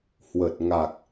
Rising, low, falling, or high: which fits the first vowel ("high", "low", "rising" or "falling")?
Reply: low